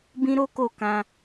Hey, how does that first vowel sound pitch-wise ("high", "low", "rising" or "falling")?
high